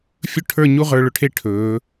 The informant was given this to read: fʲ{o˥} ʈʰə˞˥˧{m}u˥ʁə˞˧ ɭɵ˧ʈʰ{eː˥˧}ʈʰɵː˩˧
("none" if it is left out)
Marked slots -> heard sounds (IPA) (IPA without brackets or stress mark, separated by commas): ɵ˥, ɲ, e˥˧